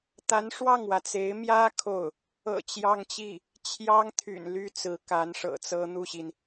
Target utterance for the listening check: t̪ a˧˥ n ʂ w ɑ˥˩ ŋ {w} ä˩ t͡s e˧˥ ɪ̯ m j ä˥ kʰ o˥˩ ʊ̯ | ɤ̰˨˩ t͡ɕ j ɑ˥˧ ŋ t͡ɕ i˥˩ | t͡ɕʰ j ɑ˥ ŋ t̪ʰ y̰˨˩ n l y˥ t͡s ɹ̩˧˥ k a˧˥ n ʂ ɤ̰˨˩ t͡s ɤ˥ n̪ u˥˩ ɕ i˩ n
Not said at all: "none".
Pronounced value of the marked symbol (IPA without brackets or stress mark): w